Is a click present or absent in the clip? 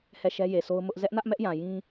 absent